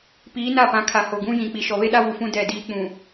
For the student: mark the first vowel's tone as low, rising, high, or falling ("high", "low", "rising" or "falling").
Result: rising